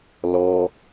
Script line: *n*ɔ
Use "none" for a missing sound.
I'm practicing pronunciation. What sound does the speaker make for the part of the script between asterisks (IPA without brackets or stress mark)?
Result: l